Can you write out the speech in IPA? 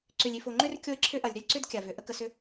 ǀ ʏ˨ lʲ i˨ f o˨ ŋ͡ǃ ʏ˦ r kʲ o˦ ɪ̯ ǁʰ ʏ˦ ʔ ɐ˨ lʲ ɾ ʏ˦ lʲ ǀ ʏ˦ d kʲ a˨ v ʏ˨ ʔ ə˦ k ə˨ s ʏ˦

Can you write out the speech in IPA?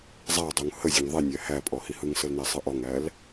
zˤ æ dˤ u ŋ h ə zʲ ɔ ŋ ðˤ i nʲ æ h æ pʼ ɔ h i h ɯ ŋ s ə l n æ sˤ ɯ ʔ ɔ ŋ æ l

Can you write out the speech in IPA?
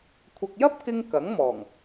kʷʰ ɐ˨ k̚ j ɐ˥ p̚ k ɪ˧ ŋ k ɐ˨˥ ŋ m ɔː˨˩ ŋ

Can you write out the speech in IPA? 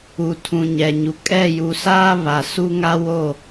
u˨ tʰ ũ˨ ɲ ɛ˨ ɲ u˨ kʼ ɛ˦˨ j u˨ s aː˦ β a˨ s u˦ ŋ a˦ w o˦˨

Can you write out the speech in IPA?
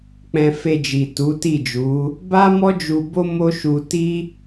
k͡p ɛ̃˧ f e˧ d͡ʒ i˨ t u˨˦ t i˦˨ d͡ʒ u˨˦ | b a˦ m ɔ˦ d͡ʒ u˧ b o˦ m o˦ ʃ u˧ t i˦

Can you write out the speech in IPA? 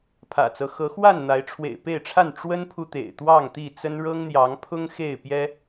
pʰ ä̰˨˩ t͡s ɤ˦ x ɤ˨˦ x w a˥˨ n n̪ a˨˦ ɪ̯ ʈ͡ʂʰ w ḛ˨˩ ɪ̯ p e˥˨ ɪ̯ ʈ͡ʂʰ a˥˨ n ʈ͡ʂ w ə˦ n pʰ u˨ t̪ ḛ˨˩ ɪ̯ t̪ w ɑ˥˨ ŋ t̪ i˥˨ t͡s ə˦ n ɻ ɤ˦ ŋ n̪ j ɑ˨˦ ŋ pʰ ʊ˦ ŋ x e˥˨ ɪ̯ p j ɛ˦

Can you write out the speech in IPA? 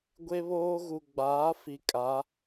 ɡʷ e˦ β oː˦ ɣ u˨ ɡ͡b aː˨˦ f i˨ kʼ a˨˦

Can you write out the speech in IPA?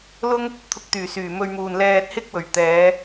l ʊ˥ ŋ | t̪ʰ ʊ˧ k̚ t̪ yː˨˩ s yː˨˩ m ɵ˧ ɥ m uː˨ n l ɛː˧ t̚ h ɪ˥ k̚ w ɵ˨˩ ɥ t̪ ɛː˨˧

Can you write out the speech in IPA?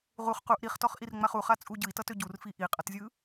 ʁ u χ q u ʔ ɾ i χ t ɔ χ ʔ i r ŋ͡m a χ u χ a t͡sʼ u ɟ ɯ i̯ t ʌ t ø ɟ u r f i ʔ i qʼ ʌ t zʲ ɯ

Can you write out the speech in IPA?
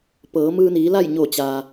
p ɤː˩˧ m ɯː˧ n iː˩˧ l a˥˨ j ɲ oː˧˩ t͡ɕ aː˩

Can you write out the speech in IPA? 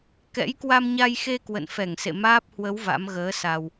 k ɛ̰˧˥ j k w a˧ m ɲ a˧ j x e˧ k w ə̰˧˨ n f ɛ˧˩ ŋ s ḛ˧˨ m aː˦˥ p̚ h w ə˨˦ w v a̰˧˥ m ɣ əː˨˦ s a˨˩ w

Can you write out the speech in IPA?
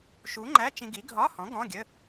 ʃ u˨˥ ŋ͡ǃ æ˧˥˧ t͡ʃ ĩ˧ ɡ i˨˥ ɡʱ ɒ˧˥˧ h ɔ̃˨˥ ɡ ɔ̃˧˥˧ ɡʲ ə˧˥˧

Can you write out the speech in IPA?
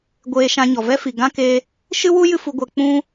ɡʷ eː˧ ʃ ã˧ ɲ ɔ˨ v ɛ˦ f i˨ ɡ ã˦ k eː˧ | ʃ ɨ˦ w u˦ j ɨ˧ f u˧ ɡʷ ɛ˧ k͡p ũ˦

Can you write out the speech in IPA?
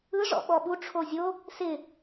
ɯ ʐ ɔ̰ ɓ ɔ ɓ u ʈ͡ʂʰ o zʲ o | s ɪ

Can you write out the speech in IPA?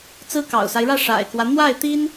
t͡s ɹ̩˥ k ɑ̰˨˩ ʊ̯ s a˦ ɪ̯ ɻ ä˥˩ ʂ a̰˨˩ ɪ̯ k w ä˦ n̪ w a˥˩ ɪ̯ t̪ i˥ n

